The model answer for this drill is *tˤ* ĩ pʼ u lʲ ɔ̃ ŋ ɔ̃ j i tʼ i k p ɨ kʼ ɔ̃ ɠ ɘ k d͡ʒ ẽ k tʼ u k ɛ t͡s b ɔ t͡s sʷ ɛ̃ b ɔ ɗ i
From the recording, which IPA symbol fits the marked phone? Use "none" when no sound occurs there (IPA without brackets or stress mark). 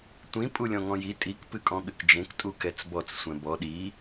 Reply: tʷ